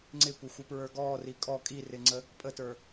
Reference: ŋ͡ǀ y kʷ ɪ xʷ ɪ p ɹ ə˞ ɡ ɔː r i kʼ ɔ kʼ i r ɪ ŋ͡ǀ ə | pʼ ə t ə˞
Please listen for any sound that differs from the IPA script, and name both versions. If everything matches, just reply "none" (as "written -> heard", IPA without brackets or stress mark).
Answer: y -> ɪ